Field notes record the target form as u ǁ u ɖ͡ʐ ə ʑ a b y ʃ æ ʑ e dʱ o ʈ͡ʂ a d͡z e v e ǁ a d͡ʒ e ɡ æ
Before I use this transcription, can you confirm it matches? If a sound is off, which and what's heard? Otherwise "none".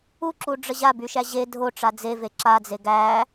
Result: d͡ʒ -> d͡z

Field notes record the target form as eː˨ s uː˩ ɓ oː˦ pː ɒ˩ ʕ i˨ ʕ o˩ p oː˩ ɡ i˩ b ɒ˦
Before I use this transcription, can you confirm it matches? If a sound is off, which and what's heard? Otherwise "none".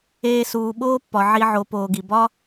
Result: none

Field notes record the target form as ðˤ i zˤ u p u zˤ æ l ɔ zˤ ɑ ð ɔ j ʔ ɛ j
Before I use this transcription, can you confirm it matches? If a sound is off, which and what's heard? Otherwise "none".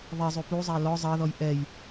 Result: none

